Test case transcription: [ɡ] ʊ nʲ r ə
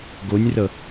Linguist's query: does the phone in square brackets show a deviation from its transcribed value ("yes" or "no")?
no